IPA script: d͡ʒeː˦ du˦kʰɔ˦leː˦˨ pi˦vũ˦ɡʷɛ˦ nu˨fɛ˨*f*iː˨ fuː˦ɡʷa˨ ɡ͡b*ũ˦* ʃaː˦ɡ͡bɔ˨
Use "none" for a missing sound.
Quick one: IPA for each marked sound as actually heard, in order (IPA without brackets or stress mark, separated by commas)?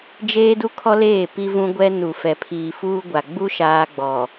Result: pʰ, u˦